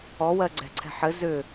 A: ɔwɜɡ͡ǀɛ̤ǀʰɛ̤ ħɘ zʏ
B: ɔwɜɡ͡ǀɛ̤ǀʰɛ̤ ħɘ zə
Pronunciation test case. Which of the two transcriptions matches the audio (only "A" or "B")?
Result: A